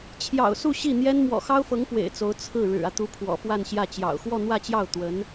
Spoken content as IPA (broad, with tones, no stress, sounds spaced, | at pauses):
t͡ɕʰ j ɑ̰˨˩ ʊ̯ s u˥˧ ɕ i˥˩ n̪ j ɛ˥ n m w ɔ̰˨˩ x ɑ˥ ʊ̯ f ɤ˧˥ ŋ p w ḛ˨˩ ɪ̯ t͡s o˧˥ ʊ̯ t͡sʰ ɹ̩˥˩ ɻ ɻ̩˨˩ ä˦ t̪ u˧˥ pʰ w ɔ̰˨˩ f w a˥˧ n ɕ j ä˥˩ t͡ɕ j ɑ̰˨˩ ʊ̯ x w ɔ˥˧ n̪ w ä˥˧ t͡ɕ j ɑ˥˩ ʊ̯ t̪ w ə˧˥ n